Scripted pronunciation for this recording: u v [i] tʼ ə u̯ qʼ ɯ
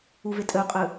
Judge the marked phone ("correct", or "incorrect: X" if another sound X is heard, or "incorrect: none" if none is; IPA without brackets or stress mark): incorrect: e